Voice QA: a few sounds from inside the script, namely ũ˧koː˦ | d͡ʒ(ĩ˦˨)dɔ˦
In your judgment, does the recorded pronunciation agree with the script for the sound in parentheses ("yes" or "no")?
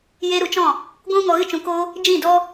yes